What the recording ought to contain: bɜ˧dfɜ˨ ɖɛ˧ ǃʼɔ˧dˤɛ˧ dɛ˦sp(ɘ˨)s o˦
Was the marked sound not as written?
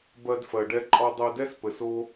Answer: no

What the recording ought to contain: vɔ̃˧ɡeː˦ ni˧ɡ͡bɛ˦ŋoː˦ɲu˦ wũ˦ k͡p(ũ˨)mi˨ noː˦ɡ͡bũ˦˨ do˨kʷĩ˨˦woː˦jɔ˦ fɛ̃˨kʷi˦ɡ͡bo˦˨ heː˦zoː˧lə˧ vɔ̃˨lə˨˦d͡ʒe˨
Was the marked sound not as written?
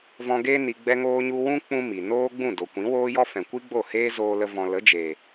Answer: yes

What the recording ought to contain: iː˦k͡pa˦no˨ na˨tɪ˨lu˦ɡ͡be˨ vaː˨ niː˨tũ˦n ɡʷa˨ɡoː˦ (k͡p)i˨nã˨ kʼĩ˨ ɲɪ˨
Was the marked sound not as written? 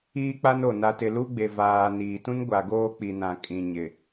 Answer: no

